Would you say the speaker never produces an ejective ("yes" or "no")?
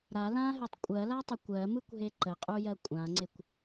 no